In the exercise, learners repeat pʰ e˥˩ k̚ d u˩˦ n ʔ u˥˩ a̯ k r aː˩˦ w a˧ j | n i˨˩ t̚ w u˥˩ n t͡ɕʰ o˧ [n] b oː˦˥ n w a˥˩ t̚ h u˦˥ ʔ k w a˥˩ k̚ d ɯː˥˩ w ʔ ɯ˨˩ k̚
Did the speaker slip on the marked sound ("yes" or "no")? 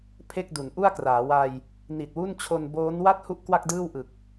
no